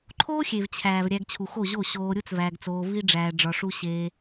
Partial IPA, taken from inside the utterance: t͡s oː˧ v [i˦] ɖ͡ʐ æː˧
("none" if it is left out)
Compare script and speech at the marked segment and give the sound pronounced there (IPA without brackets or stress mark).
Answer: i˦